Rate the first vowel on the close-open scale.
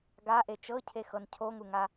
open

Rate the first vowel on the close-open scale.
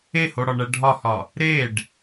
mid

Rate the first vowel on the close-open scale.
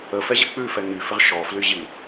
mid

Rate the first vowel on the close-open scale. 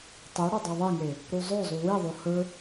close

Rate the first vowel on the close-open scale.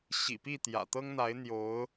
close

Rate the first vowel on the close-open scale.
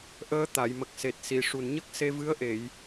mid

